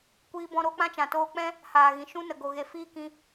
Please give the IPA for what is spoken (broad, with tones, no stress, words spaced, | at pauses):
kʷiː˧bɔ̃˧ ɾo˦k͡pã˦t͡ʃã˨ toː˧k͡pɛ̃˦ | haː˨ɣĩ˨ ʃũ˦nə˨ ɡo˨ɣe˨ fiː˦kĩ˧